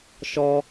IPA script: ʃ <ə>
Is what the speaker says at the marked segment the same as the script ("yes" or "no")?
no